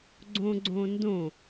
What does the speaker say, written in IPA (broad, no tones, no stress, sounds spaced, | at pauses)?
ɡ͡ǀ õ ɡ͡ǀ õ n d õ